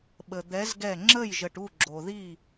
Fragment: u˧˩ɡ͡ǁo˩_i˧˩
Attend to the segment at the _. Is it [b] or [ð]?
ð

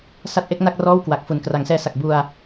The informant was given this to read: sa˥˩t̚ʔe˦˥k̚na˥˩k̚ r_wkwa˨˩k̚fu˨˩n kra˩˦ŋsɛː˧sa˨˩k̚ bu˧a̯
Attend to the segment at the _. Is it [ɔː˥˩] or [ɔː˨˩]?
ɔː˥˩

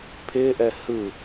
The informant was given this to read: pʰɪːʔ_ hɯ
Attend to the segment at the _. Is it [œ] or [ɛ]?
ɛ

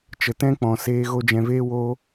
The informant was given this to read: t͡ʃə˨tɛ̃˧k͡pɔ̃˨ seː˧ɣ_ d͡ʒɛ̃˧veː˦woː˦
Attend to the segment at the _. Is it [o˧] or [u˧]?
o˧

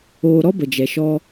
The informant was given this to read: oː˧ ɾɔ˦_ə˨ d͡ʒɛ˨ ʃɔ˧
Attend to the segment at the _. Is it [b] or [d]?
b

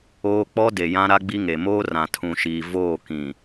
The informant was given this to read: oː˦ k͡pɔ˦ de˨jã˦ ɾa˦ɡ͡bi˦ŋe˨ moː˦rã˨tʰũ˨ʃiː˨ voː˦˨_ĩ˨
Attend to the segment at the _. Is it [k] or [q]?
k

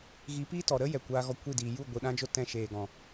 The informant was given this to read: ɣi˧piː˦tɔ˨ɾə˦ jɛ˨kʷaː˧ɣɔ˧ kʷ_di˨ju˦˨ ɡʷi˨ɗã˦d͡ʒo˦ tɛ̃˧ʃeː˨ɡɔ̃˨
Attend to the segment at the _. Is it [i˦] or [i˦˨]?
i˦˨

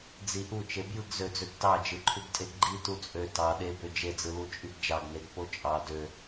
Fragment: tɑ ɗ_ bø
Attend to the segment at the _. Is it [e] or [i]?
e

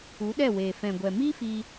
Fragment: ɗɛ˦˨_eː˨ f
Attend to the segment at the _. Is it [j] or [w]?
w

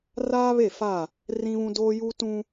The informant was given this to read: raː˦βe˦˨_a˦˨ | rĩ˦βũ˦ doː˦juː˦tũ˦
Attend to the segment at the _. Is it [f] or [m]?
f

